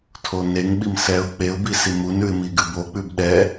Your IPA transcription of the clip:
tʰ o n e ŋ ɓ i m s ɛ ʊ̯ k͡p e ʊ̯ b i s i m u n ʉ ɪ̯ m i ɡ ʉ b o k͡p ʉ b ɗ ɛ

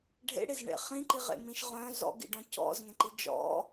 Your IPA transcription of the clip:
ɖʱ ḛ ɽ e z ɳ ḛ χ ĩ ǃ i ʁ ḛ m ĩ ʃ ʁ œ̃ z ɔ̰ ɡ ḭ ɖ ɔ̃ c ɔ̰ z ŋ ẽ ǃ i d͡ʒ ɔ̰

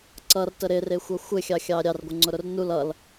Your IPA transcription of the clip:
ǀ ʌ r t ə ɾ ɪ r ɪ xʷ ʌ xʷ ɪ xʲ ɑ xʲ ɑ ɾʲ ɑ r ɡʷ ɪ ŋ͡ǀ ʊ ɾ ʊ r n u l ʌ l

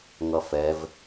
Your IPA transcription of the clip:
ŋ ʌ f ɛ v

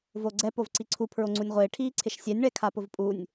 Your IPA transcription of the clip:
v o ɡ͡ǀ ɛ p o v ǀ i ǀʰ u pʰ ɹ o ŋ͡ǀ u nʲ ʁʷ ɪː ʈʰ iː ǀʰ ɪ ʃ sʲ ɛ nʲ ɳ ɛ kʰ a p ʊ v pʼ u nʲ

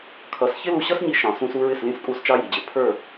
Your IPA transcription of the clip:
kʰ ʌ˨˦ s ç ɪ˦ l u˧ ɕ ʌ˦ s ɲ i˧ ʃ ɑ̃˨ s ũ˧ s u˧ ɹ ɪ˦˨ s l ĩ˦˨ s kʼ u˦˨ s t͡ʃ ɑ˦ j i˨ d͡ʑ ɪ˨ pʰ ə˞˦˨

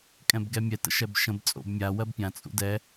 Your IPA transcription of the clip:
kʼ ɛ̃ b ɡ ɛ mʲ ɛ t ə̰ ʃ ɛ b ʃ ə̃ b t͡sʼ o̰ b mʲ a w ɜ b pʲ ã t͡sʼ ṵ d ɛ

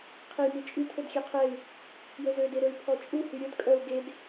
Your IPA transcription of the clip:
qʰ e j m i t͡ʃʼ y tʰ ɵ d xʲ ɛ qʰ ɛ y̯ | j ɵ z ø d e ɾ ɵ y̯ pʰ ɔ t͡ʃʼ u h y ɾʲ ɵ d kʼ œ u̯ ɡ e d

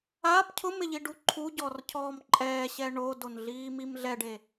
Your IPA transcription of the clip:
a p cʰ ʊ m ɪ ʎ i ɖ u ǃʰ u ɟ ɔ r cʰ ɔː m ǃʼ ɛː ɕ ɛ ɳ o d o n ɮ iː m i m ɮ ɛ ɖ e

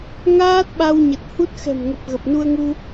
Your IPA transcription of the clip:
ŋ aː˦˥ t̚ ɓ a˧ w ɲ ə˨˩ t̚ h u˦˥ t̚ x ɛ̤˨˩ m ŋ ə˨˩ p̚ ɣ ə˨˩ p̚ n u˧ ə̯ ŋ u˧

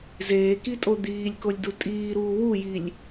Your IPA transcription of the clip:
z eː k i tʼ o d̪ iː lʲ k o lʲ d u tʼ iː ɾ uː w u j i lʲ

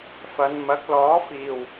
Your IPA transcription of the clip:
f ɐ˨˧ n m ɐ˨˥ k̚ l ɔː˨˥ f iː˨˩ w

